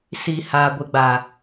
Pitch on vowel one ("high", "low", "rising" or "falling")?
low